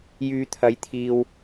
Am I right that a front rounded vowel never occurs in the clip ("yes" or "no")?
no